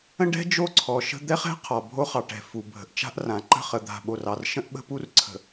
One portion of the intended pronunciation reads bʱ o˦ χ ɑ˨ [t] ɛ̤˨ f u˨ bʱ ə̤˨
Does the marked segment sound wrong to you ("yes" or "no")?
yes